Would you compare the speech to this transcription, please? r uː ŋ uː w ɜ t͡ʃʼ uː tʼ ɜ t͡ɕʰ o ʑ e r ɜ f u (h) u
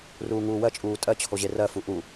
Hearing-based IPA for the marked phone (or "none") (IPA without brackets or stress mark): ʔ